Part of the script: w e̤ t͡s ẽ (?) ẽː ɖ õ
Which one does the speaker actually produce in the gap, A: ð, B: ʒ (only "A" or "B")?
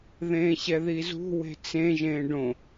B